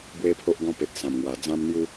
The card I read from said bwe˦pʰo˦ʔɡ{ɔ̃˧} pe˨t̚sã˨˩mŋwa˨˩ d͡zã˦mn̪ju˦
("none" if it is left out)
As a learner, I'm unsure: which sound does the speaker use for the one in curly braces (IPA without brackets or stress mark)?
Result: ɔ̃˦